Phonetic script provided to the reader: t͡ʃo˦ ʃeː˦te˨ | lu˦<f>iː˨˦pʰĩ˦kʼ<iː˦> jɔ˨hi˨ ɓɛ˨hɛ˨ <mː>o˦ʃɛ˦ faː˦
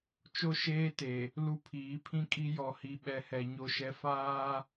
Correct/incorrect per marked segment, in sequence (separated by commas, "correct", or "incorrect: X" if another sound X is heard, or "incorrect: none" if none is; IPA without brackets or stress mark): incorrect: pʰ, incorrect: i˦, incorrect: ɲ